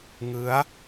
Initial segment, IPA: ŋ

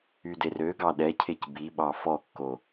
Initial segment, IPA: y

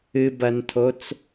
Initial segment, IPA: ɨ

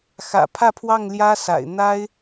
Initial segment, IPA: x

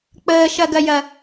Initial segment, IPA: k͡p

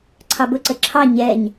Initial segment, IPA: ǀʰ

